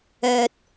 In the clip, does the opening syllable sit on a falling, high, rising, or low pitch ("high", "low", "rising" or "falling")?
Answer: low